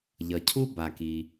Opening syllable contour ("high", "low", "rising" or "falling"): low